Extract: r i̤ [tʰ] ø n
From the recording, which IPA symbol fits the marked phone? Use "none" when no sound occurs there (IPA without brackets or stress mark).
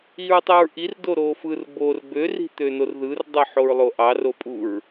t̪